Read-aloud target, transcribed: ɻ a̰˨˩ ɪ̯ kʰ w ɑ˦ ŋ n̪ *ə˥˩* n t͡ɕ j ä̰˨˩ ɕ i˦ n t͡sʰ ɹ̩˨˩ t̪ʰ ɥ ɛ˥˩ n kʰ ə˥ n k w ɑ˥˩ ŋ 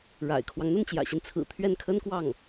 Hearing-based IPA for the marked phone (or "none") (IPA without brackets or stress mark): ə˥˩